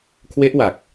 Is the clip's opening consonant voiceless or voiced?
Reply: voiceless